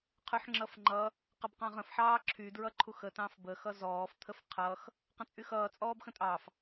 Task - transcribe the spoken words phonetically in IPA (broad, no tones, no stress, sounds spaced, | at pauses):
qʰ y ħ ŋ͡ǁ ʌ f ŋ͡ǃ ʌ | q ə b q ɑ̃ ʁ ə̃ f ħ ɑː ǁʰ y d ɹ ʌ ǃʰ u x ə t ɑ̃ f b ə x ʌ z ɔː f t̪ʰ ə f qʰ ʌ x | q ə̃ t͡sʼ y x ʌː t͡sʼ ɔː b x ə̃ tʼ ɑ f